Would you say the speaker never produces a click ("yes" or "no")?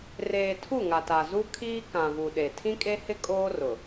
yes